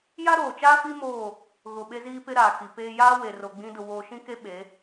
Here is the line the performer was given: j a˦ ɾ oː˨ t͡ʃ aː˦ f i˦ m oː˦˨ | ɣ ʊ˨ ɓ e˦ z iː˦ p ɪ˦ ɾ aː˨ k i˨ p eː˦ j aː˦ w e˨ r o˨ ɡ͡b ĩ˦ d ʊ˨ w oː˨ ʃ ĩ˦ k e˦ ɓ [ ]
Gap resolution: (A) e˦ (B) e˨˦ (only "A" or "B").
B